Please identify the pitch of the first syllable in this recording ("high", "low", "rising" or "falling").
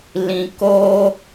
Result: low